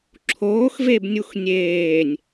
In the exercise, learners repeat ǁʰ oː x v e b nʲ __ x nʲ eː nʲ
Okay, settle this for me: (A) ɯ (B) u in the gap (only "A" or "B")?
B